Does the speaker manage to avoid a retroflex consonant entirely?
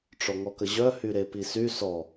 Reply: no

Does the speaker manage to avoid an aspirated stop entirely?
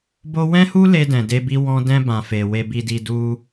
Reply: yes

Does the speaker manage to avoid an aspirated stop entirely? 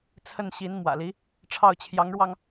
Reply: no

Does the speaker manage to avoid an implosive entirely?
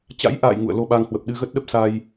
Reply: no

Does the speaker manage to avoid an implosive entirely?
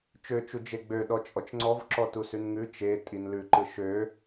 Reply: no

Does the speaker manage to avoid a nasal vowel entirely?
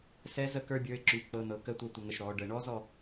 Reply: yes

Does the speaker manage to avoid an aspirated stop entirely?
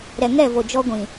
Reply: yes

